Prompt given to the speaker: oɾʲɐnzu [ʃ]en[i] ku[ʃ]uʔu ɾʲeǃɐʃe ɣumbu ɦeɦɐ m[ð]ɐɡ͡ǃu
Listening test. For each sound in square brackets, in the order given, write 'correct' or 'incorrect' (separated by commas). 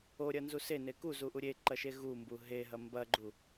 incorrect, incorrect, incorrect, incorrect